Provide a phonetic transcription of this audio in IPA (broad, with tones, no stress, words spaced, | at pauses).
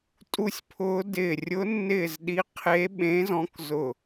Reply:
tʼu˧˩sʲpʰʊː˨˦ dɪː˧˩ rʲʊ˨˦nːɪː˧˩zɗi˨˦qʰe˨˦ ɓẽ˨˦zɔ̃˨˦k zʊ˧˩